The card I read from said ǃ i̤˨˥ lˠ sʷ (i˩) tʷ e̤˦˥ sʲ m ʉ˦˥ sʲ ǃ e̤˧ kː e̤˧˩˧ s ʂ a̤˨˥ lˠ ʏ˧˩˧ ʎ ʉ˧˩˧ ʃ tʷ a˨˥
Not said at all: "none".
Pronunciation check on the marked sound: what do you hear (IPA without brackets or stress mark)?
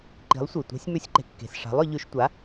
i˩